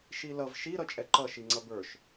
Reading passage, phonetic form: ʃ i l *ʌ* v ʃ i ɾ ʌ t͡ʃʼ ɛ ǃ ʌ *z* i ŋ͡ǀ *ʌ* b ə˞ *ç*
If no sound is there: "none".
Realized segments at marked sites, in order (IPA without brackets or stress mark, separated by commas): ʌ, ʃ, ʌ, ʃ